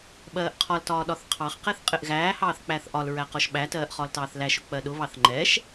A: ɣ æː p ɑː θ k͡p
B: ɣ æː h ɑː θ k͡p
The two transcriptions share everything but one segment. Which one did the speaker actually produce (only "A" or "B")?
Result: B